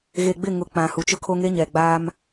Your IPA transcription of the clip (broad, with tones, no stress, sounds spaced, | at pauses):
ɣ e˨ ɡ͡b ɪ˦˨ ŋ ʊ˨ k͡p ã˨ h u˨˦ t͡ʃ ʊ˦ kʰ o˦ ŋ e˦ ɲ ɛ˨ ɡ͡b aː˦ m